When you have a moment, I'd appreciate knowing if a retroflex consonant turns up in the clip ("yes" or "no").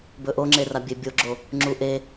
no